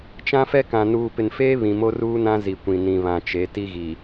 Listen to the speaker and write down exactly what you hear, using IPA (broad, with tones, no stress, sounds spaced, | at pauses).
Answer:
t͡ʃ ã˦ f ɛ˦ k ã˨ n uː˨ p ɪ˨ n f eː˦ β ĩ˨ m o˦ r uː˦ n ã˦ z i˨ kʷ ĩ˨ n ĩ˨ β ã˨ t͡ʃ e˨˦ t i˦ ɣ i˨